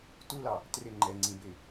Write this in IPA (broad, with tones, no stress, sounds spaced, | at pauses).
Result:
t u˦ l ɑ˨ | t r ɪ˦˨ ŋ͡ǃ ɛ˨ ŋ͡ǀ ĩ˨ b ɪ˨